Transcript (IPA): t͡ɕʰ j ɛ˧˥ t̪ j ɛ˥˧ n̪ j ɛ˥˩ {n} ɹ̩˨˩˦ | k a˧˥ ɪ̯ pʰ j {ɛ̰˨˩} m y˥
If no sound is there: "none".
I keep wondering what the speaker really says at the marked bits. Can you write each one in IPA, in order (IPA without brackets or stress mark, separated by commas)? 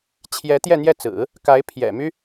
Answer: t͡s, ɛ̰˨˩